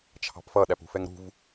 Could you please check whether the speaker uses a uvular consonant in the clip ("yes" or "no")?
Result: no